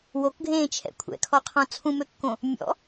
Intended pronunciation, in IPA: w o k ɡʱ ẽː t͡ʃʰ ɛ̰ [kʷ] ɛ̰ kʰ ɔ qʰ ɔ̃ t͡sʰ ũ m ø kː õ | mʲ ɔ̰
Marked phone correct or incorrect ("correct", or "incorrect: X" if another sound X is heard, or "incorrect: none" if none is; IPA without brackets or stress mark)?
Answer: incorrect: kʷʰ